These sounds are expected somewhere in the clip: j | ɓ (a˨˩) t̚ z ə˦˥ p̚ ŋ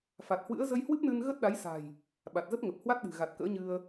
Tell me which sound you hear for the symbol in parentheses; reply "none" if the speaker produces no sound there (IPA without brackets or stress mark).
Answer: a˨˩